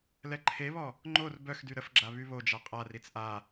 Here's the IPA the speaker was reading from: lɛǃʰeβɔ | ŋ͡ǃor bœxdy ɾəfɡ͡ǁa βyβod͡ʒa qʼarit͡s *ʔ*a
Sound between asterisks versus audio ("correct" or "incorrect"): correct